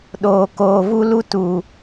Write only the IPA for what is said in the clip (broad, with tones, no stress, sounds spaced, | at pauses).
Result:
ɗ oː˨ k oː˨ v u˧ l u˧ t u˨